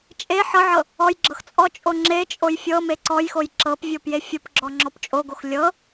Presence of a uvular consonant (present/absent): absent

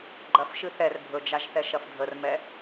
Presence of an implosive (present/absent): absent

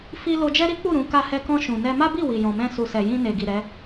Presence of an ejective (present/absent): absent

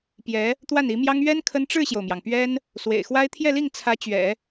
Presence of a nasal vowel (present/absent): absent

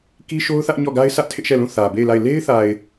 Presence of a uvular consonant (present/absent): absent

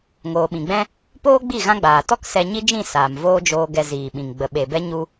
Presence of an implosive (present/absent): present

